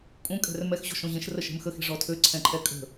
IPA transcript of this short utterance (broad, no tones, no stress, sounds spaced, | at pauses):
kʼ ũ kʼ ɛ̤ r m ɛ x ʑ o̤ ʃ õ ʑ ẽ ʃ r ə ʃ e̤ m x ə x e̤ ʐ ɔ tʰ ø ǀʰ ɛ̃ ǃʰ ɛ kʼ ə̤